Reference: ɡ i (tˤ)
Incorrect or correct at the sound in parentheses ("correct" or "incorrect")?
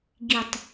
correct